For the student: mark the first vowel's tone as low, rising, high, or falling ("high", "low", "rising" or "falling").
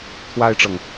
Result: high